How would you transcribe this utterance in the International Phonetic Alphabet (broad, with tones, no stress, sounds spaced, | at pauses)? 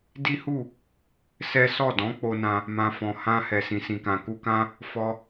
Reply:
d i˦ h u˦˨ | s ɛ˦ s ɔ˦˨ d ɔ̃˨˦ k͡p o˧ n ã˧ | m ã˨ f ɔ̃˨ h ã˧ h ɛ˨ s ĩ˨ s ĩ˨ k ã˨ k u˧ k ã˦ | f ɔ˧